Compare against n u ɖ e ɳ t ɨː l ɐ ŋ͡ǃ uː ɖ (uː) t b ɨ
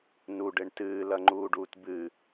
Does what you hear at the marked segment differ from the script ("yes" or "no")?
no